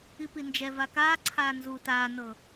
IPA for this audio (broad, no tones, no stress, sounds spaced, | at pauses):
i p i n d͡ʒ ɛ v a k aː ǀʰ aː n z uː t aː n ɤ